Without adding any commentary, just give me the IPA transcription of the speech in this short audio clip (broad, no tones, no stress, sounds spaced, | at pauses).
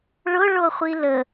ɭ ʊ ɭ o χʷ i l ə